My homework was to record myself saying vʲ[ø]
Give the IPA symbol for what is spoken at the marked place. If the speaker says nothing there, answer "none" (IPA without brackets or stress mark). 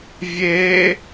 e